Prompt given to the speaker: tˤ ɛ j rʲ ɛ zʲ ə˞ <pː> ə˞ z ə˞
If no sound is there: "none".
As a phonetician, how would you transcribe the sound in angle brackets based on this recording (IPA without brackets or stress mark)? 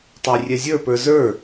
p